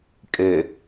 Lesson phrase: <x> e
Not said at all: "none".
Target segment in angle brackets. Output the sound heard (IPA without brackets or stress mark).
kʼ